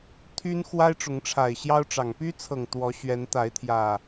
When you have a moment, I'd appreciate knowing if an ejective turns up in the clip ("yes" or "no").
no